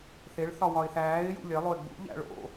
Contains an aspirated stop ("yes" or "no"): no